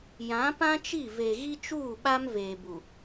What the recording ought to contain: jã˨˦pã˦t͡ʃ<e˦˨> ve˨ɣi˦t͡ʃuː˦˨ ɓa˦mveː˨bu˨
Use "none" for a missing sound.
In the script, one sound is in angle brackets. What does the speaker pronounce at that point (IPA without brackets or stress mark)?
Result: i˦˨